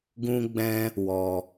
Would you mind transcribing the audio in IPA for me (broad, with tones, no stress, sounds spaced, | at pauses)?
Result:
ɡ ũ˦ ɡ͡b ɛ̃˦ | w ɔ˧